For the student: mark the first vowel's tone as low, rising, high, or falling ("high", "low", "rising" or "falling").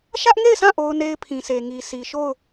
high